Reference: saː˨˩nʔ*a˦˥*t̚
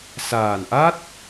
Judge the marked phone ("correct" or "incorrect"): correct